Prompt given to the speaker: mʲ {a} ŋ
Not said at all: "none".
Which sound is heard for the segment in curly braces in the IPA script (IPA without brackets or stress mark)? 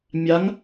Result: a